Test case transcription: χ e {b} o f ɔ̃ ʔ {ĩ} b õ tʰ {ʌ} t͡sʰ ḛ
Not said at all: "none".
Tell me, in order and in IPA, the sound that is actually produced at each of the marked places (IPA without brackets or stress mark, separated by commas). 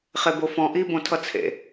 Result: b, i, ʌ